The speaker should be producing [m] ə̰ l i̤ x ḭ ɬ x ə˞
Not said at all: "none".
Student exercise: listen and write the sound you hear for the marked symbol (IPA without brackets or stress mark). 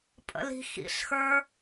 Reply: pʼ